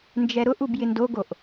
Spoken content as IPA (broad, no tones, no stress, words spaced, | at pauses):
nd͡ʒɛɾʊʔub jɪndoɡoʔ